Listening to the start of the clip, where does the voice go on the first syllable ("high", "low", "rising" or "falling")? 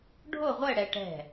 falling